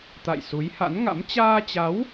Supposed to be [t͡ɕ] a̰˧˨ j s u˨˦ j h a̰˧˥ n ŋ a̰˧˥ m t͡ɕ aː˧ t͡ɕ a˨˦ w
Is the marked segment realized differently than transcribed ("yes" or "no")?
yes